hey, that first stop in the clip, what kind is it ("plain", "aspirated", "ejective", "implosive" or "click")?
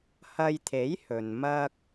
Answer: aspirated